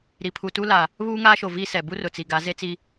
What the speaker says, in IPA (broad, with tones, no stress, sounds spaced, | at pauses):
ɾ i˨ pʰ u˨ t u˦ l a˨ | β uː˦ ŋ aː˦ ʃ o˨ v i˦ s ɛ˨ b u˦ r ʊ˨ t͡s i˨ ɡ a˨˦ z e˦ t͡s i˦